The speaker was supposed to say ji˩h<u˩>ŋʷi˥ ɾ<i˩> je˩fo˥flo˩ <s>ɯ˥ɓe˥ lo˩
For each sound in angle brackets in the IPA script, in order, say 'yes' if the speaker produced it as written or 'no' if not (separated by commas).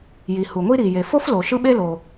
yes, yes, no